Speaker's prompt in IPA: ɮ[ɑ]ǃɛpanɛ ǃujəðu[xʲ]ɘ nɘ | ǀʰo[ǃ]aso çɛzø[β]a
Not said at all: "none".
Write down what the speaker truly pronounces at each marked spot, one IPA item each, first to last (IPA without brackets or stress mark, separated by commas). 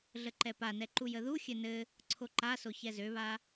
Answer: ə, xʲ, ǃ, β